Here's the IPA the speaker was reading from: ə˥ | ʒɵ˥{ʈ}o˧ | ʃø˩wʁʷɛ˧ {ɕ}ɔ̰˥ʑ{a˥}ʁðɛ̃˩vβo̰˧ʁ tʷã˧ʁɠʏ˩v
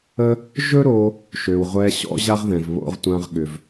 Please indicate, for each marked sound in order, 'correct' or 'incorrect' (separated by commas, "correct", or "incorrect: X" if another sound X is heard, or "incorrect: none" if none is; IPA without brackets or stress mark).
incorrect: ɾ, correct, correct